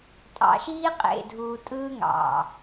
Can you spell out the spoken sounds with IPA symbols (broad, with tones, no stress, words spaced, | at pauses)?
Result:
tʼɑ̰˨ʃiː˦qʼḛ˨dʱuː˨ tʼɯː˦ŋɑ̰˨